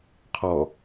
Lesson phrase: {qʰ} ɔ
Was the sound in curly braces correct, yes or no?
yes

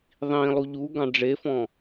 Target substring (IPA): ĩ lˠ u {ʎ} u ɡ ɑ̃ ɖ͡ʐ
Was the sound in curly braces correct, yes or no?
yes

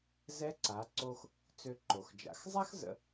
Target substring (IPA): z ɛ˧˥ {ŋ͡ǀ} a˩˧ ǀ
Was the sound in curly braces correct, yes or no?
no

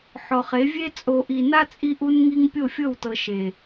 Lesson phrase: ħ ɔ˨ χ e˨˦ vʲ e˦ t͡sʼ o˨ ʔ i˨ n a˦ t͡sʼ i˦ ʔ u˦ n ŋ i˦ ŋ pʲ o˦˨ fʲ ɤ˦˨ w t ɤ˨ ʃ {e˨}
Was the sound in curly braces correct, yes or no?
yes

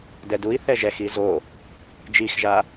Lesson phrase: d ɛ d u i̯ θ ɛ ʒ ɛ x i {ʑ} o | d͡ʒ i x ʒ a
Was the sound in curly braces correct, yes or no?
no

